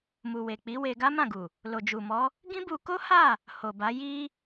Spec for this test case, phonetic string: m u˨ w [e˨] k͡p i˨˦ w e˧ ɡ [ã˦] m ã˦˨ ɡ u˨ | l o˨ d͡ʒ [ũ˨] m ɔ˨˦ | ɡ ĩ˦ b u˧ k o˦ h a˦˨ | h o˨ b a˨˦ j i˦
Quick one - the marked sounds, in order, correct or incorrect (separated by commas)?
correct, incorrect, incorrect